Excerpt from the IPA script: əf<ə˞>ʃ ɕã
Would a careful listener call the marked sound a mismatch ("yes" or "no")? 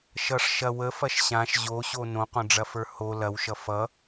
yes